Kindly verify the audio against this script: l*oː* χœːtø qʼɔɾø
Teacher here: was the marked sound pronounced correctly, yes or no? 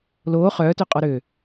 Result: yes